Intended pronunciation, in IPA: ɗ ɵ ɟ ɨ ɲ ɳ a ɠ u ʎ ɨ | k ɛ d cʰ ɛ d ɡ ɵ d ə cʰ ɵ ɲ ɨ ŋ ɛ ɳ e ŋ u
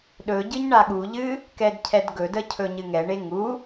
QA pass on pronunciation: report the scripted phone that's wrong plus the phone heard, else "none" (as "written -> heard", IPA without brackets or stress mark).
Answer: none